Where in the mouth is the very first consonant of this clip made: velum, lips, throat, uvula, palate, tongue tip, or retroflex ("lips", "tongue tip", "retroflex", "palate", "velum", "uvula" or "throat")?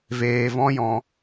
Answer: lips